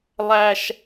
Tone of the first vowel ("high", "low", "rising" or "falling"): high